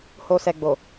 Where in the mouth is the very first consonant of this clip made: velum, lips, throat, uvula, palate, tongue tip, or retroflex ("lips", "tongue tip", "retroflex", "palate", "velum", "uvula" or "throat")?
throat